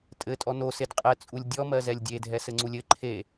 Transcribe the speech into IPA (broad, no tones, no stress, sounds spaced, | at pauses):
tʼ ɘ tʼ ɔ n o s e d qʼ ɛ t͡sʼ u lʲ dʲ ɔ m ɜ z ɛ lʲ dʲ e dʱ ɛ s ɘ ŋ͡ǀ u lʲ ɘ ǃʰ e